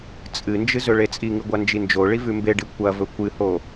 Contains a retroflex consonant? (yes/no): yes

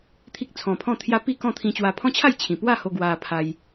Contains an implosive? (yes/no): no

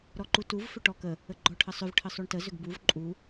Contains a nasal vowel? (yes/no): no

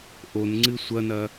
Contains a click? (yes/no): yes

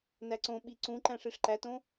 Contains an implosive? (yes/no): yes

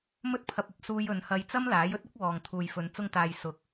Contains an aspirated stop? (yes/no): yes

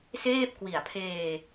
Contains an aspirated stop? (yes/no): yes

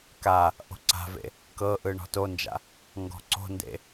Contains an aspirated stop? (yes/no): no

